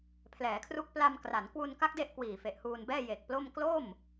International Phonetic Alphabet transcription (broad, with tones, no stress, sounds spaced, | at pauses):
pʰ l ɛː˩˦ kʰ r u˥˩ k̚ p l a˧ m k r a˩˦ n k w u˧ n k a˦˥ k̚ d e˥˩ ʔ k w iː˨˩ f e˨˩ ʔ h uː˧ n b ɛː˥˩ j e˨˩ k̚ p l o˥˩ m k l o˥˩ m